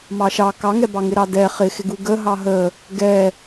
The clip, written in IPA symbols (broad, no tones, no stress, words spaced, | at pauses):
mɑʃɑ kɑŋɛbɑŋɪ ɾɑdɛ χɪxɪɡu ɡə ɦɑɦə | ɡɛ